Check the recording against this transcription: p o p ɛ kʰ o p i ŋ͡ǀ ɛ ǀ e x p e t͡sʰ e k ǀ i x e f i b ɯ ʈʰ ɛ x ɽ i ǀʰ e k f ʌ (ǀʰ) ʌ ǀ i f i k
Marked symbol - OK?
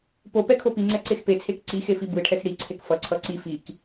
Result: yes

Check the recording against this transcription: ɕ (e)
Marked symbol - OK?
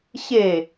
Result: yes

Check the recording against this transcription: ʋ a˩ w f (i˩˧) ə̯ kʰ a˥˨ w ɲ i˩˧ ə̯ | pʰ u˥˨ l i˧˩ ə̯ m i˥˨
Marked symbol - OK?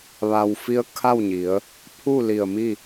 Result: no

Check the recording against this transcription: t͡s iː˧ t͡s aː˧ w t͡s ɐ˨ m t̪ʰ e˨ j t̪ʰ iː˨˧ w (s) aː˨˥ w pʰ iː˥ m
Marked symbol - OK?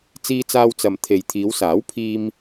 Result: yes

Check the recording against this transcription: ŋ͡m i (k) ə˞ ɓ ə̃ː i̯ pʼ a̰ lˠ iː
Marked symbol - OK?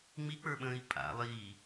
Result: no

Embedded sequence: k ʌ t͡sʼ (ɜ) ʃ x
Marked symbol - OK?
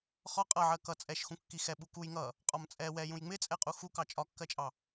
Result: no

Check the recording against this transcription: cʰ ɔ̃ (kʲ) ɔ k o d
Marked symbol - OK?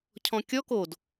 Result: yes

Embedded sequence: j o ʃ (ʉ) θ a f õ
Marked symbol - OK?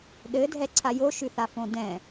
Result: yes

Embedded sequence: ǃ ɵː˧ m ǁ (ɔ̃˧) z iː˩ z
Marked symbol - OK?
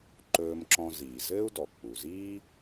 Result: yes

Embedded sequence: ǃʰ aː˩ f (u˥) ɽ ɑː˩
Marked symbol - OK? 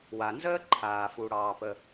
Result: no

